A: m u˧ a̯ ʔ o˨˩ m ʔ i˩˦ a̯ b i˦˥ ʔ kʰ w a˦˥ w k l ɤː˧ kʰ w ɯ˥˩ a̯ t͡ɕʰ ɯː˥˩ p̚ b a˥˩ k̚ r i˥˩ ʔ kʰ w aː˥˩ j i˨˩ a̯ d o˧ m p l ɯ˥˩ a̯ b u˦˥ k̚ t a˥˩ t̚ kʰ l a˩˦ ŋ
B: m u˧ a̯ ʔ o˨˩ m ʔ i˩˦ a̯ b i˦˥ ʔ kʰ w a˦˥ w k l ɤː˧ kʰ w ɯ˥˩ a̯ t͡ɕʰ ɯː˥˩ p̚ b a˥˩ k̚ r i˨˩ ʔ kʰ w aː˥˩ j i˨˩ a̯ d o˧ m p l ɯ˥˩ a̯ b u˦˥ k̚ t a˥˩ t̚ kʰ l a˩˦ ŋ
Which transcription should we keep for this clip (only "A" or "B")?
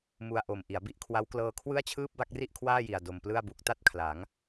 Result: A